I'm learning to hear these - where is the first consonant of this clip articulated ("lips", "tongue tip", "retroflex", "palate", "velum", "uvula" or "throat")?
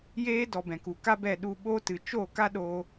palate